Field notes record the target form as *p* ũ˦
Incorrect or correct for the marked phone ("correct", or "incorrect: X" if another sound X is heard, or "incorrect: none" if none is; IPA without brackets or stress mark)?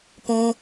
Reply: correct